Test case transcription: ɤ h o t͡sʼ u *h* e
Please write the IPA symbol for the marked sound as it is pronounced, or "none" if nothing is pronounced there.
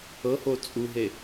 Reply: ɦ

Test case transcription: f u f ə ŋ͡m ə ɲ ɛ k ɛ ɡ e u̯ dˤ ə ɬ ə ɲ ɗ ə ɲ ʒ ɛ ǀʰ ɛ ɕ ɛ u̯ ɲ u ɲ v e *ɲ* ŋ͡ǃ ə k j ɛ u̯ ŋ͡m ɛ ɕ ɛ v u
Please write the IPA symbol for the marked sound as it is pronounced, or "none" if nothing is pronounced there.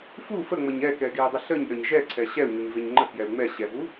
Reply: ɲ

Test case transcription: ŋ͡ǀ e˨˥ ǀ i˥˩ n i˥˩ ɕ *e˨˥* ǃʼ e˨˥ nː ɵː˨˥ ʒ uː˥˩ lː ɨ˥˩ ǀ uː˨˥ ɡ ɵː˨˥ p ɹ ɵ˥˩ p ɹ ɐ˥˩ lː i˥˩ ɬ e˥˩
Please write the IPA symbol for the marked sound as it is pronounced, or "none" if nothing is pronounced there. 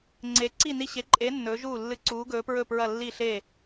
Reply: e˨˥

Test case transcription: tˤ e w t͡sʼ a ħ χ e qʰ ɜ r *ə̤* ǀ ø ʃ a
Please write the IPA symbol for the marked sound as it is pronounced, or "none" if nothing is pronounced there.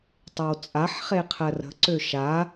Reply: ə̤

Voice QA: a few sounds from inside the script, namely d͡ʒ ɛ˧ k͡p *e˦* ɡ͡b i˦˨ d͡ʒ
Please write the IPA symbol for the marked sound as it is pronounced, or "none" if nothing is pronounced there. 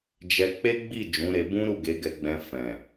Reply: e˦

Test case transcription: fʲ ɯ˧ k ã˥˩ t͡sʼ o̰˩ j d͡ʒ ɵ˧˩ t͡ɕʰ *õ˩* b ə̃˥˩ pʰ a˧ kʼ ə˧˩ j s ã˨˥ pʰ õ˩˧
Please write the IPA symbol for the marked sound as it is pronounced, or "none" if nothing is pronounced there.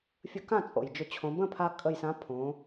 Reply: õ˩˧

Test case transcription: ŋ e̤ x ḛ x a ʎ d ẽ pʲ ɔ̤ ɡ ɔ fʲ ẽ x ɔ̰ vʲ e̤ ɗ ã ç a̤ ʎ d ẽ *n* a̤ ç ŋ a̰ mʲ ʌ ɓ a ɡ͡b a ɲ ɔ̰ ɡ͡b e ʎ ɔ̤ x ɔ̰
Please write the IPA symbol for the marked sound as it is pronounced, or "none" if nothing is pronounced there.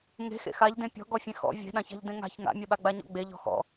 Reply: ŋ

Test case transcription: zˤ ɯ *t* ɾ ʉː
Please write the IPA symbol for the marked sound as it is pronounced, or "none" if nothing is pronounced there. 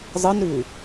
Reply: n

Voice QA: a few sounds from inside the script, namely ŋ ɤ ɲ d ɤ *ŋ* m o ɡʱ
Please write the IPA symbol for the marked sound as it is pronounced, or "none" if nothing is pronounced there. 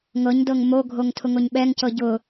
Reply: ŋ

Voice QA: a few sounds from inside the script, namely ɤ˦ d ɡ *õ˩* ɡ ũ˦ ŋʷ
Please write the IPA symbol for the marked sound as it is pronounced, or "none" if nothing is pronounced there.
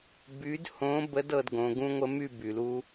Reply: õ˨˦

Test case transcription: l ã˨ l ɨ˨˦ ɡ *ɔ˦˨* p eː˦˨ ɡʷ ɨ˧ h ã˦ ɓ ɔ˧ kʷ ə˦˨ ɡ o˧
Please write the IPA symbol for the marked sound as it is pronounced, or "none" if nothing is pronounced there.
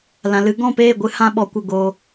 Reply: ɔ̃˦˨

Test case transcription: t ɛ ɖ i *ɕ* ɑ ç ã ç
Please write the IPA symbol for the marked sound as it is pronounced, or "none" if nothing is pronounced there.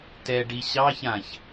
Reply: ɕ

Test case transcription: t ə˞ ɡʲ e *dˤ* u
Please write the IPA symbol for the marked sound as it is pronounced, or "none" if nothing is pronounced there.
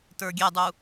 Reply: dˤ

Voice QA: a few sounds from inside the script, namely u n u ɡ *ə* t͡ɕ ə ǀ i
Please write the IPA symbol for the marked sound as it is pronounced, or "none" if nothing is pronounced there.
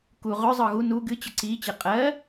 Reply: ɨ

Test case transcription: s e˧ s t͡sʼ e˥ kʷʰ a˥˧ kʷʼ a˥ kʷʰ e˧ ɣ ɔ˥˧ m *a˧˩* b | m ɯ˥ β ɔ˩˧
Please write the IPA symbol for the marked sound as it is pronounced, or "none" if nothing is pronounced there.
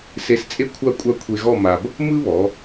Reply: a˧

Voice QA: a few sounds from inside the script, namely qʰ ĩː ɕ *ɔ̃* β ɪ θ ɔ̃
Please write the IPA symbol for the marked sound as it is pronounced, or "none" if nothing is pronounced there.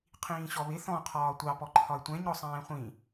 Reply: ɔ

